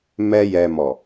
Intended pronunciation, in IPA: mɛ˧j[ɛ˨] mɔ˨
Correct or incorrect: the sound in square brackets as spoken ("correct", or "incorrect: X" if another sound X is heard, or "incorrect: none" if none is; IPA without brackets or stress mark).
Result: correct